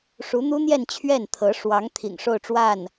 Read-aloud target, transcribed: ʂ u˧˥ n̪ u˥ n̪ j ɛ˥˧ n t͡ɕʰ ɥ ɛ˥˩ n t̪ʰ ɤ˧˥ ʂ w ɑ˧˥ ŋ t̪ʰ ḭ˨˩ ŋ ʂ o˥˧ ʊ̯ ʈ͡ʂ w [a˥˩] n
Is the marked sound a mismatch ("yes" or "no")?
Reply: no